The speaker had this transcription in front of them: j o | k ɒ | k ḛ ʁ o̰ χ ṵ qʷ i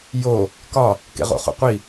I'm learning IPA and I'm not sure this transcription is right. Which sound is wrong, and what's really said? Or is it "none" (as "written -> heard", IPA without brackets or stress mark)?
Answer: none